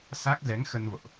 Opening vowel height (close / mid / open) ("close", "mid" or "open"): open